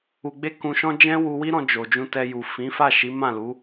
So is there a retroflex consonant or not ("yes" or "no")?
no